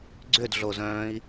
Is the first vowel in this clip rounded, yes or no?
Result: yes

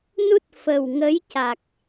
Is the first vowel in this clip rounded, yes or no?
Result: yes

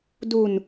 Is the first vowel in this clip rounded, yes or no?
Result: yes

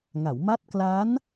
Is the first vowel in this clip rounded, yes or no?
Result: no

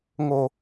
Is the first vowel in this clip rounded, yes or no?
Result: yes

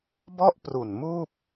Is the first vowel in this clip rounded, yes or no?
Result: yes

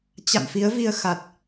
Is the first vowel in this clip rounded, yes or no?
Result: no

